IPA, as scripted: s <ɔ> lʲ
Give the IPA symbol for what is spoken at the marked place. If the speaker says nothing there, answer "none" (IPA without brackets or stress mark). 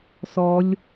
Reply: ɔ